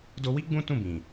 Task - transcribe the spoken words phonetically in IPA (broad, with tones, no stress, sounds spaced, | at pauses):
d o˧ w i˦ ɡ͡b ũ˦ t ũ˦˨ b ĩ˨